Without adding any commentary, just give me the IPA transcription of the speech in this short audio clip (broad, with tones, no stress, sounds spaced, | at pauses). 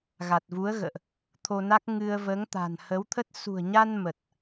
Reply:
ɣ a˨˩ t̚ v u˨˦ ə̯ ɣ ə̰ː˧˨ ʔ | t̪ʰ o˧ n a˦˥ k̚ ŋ ɨ˧ ə̯ v əː˨˦ ŋ t̪ a̤˨˩ n h ə˨˦ w t̪ʰ ə˦˥ t̚ s ṳ˨˩ ə̯ ɲ a˧ n m ə˨˩ t̚